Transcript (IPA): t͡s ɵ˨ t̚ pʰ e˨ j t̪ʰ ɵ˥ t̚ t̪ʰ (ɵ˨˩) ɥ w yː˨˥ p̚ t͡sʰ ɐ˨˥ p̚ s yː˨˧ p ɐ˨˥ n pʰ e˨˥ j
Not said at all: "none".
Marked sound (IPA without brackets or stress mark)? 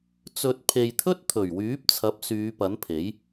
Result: ɵ˨˩